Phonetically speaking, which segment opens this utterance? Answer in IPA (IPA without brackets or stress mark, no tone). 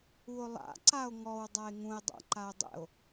u